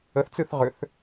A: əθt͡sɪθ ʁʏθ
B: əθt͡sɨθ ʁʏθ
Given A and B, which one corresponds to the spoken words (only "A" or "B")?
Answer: B